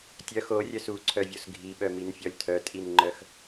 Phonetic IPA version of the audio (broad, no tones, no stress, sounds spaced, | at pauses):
tʲ œ x o rʲ œ s u ǀʰ œ vʲ o s ɡʱ i ɓ œ m i n fʲ ɔ lʲ tʰ œ tʼ i n ŋ͡ǃ œ x